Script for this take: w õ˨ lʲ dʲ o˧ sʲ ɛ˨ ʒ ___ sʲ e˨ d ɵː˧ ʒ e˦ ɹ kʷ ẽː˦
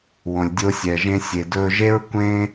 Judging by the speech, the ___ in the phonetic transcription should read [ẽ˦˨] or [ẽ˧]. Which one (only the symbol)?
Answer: ẽ˧